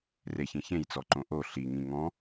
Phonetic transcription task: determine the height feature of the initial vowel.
mid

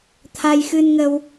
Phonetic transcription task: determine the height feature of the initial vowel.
low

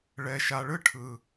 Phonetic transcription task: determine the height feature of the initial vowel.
mid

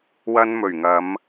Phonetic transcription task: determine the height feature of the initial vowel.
low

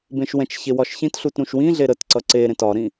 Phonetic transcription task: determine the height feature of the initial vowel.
mid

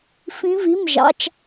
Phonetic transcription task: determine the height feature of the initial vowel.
high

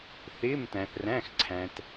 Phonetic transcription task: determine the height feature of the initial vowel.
high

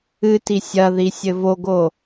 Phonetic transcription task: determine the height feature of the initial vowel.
high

